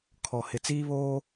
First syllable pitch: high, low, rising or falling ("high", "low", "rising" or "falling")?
low